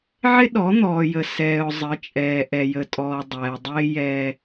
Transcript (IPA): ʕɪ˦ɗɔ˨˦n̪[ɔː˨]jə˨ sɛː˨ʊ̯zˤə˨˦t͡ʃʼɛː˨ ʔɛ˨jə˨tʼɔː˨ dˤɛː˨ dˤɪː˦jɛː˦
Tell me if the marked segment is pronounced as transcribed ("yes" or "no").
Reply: yes